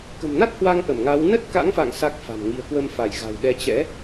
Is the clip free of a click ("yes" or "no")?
yes